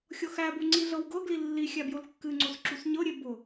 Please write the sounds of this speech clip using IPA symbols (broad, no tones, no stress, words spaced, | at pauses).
xʲɤxæbu ŋ͡ǀiɮɤwɡɤɡli lːi xʲæbjolkːɨŋ͡ǀos ǁusɲɤɾʲe bʊ